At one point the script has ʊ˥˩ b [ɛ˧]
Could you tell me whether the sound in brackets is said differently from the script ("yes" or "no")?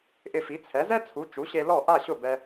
no